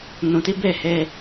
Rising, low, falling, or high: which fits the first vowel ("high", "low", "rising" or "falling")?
low